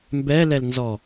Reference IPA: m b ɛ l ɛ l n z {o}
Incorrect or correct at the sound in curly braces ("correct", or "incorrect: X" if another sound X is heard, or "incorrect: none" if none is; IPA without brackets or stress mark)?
incorrect: ɔ